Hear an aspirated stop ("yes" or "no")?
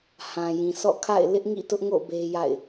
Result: yes